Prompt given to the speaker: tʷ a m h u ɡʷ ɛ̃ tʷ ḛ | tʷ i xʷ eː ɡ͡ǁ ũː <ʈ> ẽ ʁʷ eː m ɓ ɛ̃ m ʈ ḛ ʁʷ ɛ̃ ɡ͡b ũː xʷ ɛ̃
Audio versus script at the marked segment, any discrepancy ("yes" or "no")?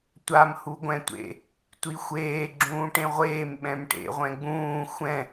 no